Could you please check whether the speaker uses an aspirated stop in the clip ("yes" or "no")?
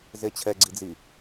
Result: yes